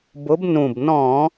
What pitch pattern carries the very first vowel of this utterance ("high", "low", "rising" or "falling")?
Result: rising